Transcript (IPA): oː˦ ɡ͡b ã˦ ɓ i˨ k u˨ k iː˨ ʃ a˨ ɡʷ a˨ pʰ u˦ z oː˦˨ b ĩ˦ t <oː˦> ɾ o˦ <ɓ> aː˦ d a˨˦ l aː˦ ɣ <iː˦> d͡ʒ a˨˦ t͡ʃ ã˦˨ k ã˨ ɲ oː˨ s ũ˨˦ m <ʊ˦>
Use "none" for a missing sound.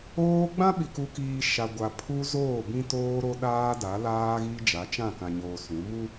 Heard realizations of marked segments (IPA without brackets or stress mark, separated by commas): oː˦, ɗ, i˦, u˦